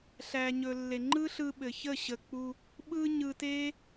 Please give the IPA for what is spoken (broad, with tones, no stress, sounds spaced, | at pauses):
ɬ æ˨ ɲ ɵ˨ lː e˨ ŋ͡ǃ ɯ˦ ɬ ɯ˧ ɓ ɘ˨ ç ə˦˨ ɕ ə˨ k͡p u˧ | ɓ ɯ˦ ɲ ɯ˧ t e˦